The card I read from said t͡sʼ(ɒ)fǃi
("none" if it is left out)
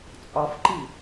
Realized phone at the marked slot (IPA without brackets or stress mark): ɒ